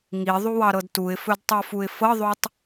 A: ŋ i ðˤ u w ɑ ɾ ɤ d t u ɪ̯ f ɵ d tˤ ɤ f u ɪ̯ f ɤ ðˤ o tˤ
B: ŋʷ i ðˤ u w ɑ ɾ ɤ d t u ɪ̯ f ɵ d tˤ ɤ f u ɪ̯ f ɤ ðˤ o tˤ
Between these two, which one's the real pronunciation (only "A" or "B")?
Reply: A